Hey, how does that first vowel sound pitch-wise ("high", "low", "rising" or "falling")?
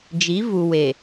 rising